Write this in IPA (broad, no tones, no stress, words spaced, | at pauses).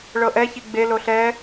ɭɤʔɛçi ɡ͡be loɬɛ